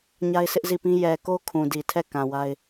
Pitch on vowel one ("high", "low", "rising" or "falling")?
high